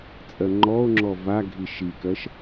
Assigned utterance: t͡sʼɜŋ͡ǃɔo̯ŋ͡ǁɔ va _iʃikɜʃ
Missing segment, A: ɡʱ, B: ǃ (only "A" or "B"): A